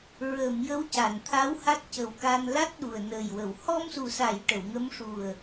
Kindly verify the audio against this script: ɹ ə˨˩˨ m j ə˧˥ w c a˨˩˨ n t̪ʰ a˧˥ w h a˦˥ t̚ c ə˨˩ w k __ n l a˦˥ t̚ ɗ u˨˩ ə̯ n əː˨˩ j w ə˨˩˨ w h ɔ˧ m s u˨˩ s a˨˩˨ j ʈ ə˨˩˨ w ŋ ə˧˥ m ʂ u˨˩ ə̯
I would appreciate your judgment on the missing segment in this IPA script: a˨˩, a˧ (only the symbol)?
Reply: a˧